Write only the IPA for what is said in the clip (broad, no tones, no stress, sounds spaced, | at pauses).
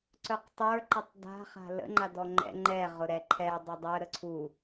ǀ œ q tˤ ə˞ ǃ ə tˤ d a̤ χ a̤ l ə̰ ŋ͡ǃ a d ɔ ŋ͡ǃ ɛ̰ ŋ͡ǃ ɛ ʁ ʊ ɾ ɛ ǃʰ ɛ dˤ ɐ dˤ œ ɾ ə ǀʰ u